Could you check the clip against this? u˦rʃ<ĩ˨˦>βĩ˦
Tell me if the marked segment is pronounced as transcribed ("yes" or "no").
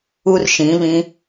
yes